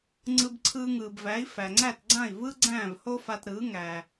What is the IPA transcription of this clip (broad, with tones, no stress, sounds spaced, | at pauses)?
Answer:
ŋ͡ǀ ɯ˧ b ǀʰ ɯː˧ ŋ ɯː˩ b v æ˩˥ i̯ f æ˩ ŋ͡ǀ æ˥˩ t ɡ͡ǀ ã˥˩ i̯ v ɯ˥ ɡ͡ǀ æ̃ː˥˩ v h o˥ f a˧ t ɾ ɯː˩˥ ŋ æ˩